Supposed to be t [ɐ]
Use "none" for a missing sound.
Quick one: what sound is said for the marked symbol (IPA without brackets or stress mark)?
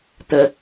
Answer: ə